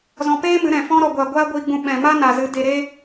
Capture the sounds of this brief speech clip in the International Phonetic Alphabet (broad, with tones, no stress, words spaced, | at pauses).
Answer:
zɔ̃˧peː˦mɨ˨˦ɾɛ̃˨ fɔ̃˧ɾɔ˨ɡʷa˨ ɡʷaː˦ɡʷiː˧ɡ͡bũ˧ ɓɛ̃˨ ma˦na˨zɨ˨˦ de˧ɾe˦